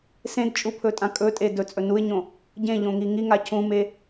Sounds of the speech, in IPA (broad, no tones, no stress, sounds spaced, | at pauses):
s ẽ d t͡ʃʼ u pʰ ɵ tʼ ã kʼ ɵ tʼ e d ɵ t͡sʼ ɵ n u ɪ̯ ɲ õ | ɟ ẽ ʎ õ ŋ i ŋ i ŋ a cʰ ũ m e